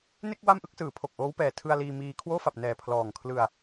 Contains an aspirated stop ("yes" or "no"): yes